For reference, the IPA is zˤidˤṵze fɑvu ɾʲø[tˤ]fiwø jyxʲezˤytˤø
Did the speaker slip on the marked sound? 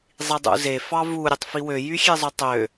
no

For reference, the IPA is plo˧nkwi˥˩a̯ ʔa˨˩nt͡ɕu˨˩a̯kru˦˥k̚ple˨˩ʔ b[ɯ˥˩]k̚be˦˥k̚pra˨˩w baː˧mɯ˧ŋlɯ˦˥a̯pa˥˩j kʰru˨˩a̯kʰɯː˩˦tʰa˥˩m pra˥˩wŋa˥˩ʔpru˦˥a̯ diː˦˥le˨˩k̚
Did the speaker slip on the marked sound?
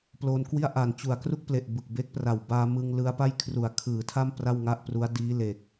yes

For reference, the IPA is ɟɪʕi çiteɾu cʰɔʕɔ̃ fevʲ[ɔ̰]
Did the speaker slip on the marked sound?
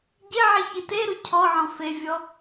yes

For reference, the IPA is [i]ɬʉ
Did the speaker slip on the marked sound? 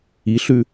no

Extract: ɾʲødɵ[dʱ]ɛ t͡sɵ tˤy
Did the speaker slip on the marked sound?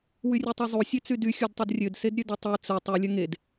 yes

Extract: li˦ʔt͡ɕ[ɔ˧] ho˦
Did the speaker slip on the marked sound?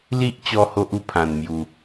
no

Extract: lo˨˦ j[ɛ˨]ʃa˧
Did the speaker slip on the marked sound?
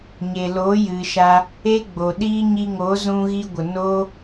yes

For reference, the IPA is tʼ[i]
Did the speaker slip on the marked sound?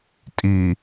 no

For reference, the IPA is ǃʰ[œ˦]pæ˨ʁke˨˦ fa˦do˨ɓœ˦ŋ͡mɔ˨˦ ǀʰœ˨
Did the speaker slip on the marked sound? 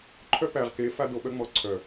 no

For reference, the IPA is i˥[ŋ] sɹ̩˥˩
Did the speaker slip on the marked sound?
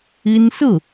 yes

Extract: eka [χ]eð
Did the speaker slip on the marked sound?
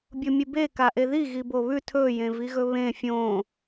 yes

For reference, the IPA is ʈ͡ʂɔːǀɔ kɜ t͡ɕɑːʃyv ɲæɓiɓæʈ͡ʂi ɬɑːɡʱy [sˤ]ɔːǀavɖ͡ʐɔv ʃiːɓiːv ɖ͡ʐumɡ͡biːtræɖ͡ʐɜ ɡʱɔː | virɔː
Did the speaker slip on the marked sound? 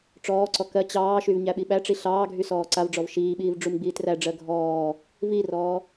yes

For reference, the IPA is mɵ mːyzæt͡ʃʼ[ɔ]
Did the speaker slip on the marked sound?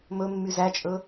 yes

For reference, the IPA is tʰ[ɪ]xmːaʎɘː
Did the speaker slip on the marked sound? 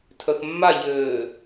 yes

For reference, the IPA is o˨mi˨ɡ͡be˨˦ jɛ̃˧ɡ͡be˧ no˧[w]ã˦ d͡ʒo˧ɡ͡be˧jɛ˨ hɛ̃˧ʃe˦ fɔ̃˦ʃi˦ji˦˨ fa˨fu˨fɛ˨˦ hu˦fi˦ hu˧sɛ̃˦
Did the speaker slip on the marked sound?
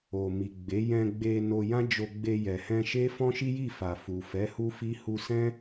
yes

